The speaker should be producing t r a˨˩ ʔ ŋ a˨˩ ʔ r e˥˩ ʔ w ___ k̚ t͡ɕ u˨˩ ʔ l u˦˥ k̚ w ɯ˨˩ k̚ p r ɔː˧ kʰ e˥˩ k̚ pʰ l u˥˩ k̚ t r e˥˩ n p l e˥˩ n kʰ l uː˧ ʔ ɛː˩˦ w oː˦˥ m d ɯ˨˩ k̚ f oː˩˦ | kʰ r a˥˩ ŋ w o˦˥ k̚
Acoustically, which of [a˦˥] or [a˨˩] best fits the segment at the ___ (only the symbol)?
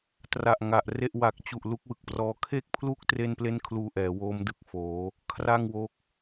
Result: a˨˩